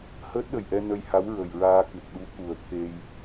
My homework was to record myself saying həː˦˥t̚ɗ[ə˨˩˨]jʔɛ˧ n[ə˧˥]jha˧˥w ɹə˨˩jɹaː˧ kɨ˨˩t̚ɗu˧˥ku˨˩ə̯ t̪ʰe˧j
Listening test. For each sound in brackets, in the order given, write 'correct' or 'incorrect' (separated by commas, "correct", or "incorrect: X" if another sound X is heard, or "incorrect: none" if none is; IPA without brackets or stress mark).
incorrect: ə˨˩, incorrect: ə˧